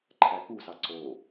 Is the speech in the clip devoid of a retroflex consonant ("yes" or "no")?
yes